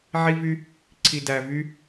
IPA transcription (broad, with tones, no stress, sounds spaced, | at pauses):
ʕ i˦ v y˦ | ǀʰ i˨ d æ˨ v y˦